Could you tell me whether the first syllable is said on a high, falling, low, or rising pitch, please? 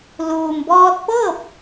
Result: low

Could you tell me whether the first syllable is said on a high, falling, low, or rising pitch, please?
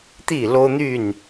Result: falling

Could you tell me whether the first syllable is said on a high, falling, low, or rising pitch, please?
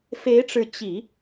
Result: rising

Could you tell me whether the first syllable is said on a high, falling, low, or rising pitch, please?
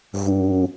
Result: high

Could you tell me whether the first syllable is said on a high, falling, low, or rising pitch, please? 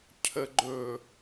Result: low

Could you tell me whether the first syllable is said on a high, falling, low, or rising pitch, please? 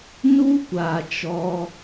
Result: high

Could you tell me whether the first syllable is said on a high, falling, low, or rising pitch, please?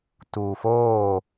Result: low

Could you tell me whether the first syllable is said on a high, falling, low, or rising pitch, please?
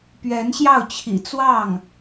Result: rising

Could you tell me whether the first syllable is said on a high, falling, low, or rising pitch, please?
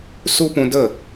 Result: high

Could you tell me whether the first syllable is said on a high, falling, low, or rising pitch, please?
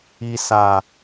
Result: low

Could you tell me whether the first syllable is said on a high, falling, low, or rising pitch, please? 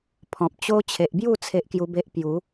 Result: low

